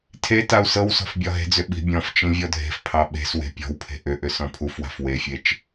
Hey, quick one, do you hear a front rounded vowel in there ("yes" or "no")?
yes